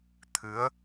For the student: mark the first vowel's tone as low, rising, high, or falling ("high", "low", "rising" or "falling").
rising